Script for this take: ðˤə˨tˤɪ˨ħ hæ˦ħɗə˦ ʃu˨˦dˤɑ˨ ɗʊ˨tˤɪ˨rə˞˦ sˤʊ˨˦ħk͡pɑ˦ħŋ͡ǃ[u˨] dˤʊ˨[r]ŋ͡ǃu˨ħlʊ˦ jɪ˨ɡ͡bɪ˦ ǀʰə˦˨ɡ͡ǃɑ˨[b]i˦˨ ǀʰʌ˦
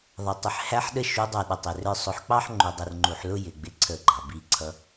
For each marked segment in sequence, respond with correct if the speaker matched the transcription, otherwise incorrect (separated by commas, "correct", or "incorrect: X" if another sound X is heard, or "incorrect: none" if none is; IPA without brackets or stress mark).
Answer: correct, correct, correct